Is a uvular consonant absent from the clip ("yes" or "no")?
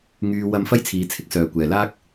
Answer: yes